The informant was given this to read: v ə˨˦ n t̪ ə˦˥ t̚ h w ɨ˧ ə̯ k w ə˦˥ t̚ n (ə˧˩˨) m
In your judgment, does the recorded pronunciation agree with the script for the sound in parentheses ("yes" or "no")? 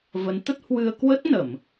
yes